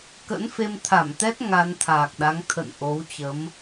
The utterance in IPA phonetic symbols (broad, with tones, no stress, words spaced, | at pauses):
kə̰˧˥nfe˧mt̪ʰa˧˩mt̪ɛ˦˥t̚ ŋa˧n t̪ʰaː˨˩k̚ɗa˨˦ŋ t̪ʰə̰˧˨n ʔo˨˦wt͡ɕə˨˦m